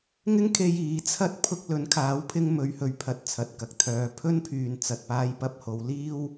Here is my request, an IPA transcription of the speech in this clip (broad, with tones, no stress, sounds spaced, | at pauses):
ŋ ɪ˥ ŋ kʰ e˧ j iː˨˥ t͡sʰ ɐ˥ t̚ pʰ ʊ˥ k̚ l ɵ˨˥ n kʰ aː˨˥ w pʰ ɪ˧ ŋ m ɵ˨˧ ɥ h ɵ˨ ɥ pʰ ɐ˨ t̚ t͡sʰ ɐ˨ t̚ k ɐ˨ k̚ t̪ʰ œː˨˧ pʰ ɵ˥ n pʰ yː˨ n t͡s ɐ˨ t̚ p aː˧ j p ɐ˧ p̚ h o˨˧ w l iː˥ w